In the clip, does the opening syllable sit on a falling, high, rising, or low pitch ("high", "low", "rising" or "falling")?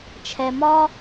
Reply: low